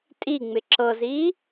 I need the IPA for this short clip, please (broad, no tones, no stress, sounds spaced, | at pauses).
tʼ i ŋ͡m ɪ ǁ ɤ z iː